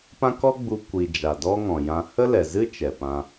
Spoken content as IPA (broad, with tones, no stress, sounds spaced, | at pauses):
p ã˦ k ɔ˦ ɡ͡b u˧ kʷ i˨ d͡ʒ a˨ d ɔ˦ ŋ ɔ̃˨ j ã˧ h ə˦ l ɛ˨ z ɨ˦ t͡ʃ ɛ˨ p ã˧